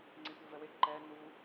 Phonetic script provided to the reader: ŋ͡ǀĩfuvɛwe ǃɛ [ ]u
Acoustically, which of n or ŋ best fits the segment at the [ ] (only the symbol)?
n